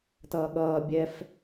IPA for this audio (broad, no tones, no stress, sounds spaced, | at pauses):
t ʌː ɠ ʌː bʲ ɛ f